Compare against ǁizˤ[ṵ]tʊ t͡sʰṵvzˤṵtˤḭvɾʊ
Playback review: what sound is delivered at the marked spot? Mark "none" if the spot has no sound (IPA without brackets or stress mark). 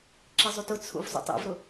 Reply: u